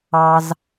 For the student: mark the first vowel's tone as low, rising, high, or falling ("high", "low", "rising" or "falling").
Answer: high